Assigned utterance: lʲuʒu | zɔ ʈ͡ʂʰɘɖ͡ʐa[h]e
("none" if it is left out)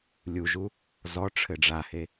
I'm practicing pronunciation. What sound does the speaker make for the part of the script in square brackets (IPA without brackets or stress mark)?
h